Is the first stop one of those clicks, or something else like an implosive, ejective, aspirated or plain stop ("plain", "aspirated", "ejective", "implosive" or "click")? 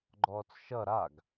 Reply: click